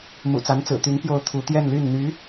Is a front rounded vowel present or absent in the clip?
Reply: present